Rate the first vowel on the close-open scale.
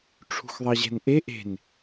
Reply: close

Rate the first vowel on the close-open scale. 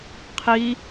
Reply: close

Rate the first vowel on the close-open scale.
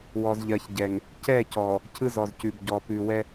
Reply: mid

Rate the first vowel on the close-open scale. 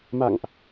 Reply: open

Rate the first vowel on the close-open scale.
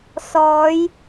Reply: mid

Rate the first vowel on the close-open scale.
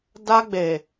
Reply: open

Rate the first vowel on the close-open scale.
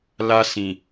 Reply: open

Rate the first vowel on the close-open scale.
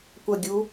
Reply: open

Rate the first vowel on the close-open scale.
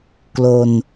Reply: mid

